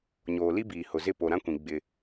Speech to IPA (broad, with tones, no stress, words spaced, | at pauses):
ɲoː˨li˦biː˨ hʊ˨zɪ˦˨ po˨ɾã˦kʷĩ˨ ɡ͡bɪ˦